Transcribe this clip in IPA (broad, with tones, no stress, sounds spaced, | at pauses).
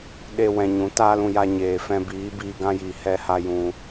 ɗ e˧ w ɛ̃˨ ɲ ũ˨˦ t aː˦ l ũ˧ j a˧ ɲ eː˨ f ɛ̃˧ b iː˨˦ b iː˧ ɡ ã˦ j iː˨ h ɛ˧ h a˧ j ũ˧